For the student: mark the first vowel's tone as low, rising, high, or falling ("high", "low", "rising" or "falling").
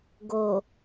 low